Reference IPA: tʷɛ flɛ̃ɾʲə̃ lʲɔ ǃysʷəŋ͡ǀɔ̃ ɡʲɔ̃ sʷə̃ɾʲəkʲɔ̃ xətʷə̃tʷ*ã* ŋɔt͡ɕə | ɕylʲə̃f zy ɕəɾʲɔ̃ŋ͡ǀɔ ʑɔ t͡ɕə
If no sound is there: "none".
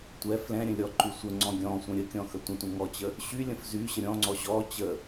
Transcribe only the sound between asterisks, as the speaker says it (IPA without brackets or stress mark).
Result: ə̃